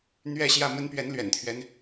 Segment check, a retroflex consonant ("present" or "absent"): absent